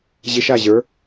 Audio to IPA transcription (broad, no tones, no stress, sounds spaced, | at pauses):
ʑ ɪ ʃ a ʑ ə˞